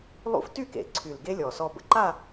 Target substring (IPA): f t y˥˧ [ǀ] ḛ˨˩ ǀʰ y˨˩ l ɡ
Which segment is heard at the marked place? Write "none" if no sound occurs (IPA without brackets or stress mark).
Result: k